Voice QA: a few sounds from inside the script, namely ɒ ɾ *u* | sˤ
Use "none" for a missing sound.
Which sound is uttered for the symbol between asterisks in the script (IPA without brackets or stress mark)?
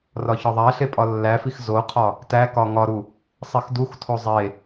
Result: u